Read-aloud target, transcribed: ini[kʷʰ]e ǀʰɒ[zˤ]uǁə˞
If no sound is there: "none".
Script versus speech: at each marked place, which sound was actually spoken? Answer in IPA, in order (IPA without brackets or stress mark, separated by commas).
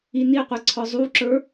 qʷ, zˤ